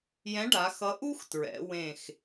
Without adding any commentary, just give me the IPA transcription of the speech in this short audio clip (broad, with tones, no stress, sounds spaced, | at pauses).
j ɛ̃˨˥ ɖ a˩˧ x ʌ˨˥ ʔ u˥ x t ɹ ɛ̰˩˧ w ẽ˧˩ x